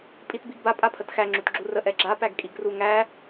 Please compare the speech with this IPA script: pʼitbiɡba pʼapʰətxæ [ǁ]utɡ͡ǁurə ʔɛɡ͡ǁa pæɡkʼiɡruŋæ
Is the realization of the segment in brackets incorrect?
yes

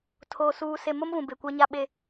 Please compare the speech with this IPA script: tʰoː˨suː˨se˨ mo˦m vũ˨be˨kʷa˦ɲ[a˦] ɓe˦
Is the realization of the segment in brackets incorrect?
no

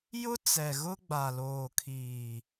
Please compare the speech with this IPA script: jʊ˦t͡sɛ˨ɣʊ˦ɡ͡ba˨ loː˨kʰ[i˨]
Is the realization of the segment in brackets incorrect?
yes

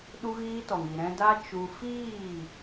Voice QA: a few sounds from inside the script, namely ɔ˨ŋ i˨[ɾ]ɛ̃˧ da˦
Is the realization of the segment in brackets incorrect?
no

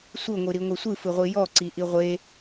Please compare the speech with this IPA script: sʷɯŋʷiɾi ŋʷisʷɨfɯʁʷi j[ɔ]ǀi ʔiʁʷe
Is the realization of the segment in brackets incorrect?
no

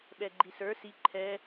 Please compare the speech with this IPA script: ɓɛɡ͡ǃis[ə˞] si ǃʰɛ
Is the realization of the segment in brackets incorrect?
no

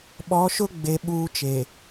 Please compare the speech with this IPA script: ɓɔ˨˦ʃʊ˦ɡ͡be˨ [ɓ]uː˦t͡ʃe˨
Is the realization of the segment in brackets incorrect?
no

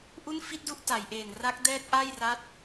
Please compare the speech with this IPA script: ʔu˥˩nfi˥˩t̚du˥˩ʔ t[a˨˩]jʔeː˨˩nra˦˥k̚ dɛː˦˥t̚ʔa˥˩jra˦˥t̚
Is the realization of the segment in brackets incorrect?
yes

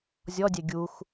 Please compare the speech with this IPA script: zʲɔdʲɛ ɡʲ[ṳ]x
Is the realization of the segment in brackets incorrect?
yes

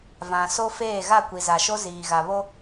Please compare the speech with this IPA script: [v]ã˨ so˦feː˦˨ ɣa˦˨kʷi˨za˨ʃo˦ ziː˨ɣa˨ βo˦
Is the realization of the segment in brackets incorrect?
no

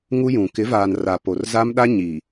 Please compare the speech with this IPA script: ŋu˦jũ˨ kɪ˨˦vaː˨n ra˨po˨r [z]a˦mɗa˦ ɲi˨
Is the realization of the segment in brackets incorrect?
no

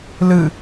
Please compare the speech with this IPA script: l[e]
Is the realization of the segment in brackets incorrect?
yes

